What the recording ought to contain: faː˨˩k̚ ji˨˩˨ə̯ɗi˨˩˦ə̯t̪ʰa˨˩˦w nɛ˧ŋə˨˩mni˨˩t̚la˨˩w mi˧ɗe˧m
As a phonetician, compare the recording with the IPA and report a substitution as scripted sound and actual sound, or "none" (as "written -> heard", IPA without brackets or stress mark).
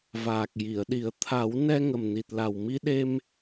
f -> v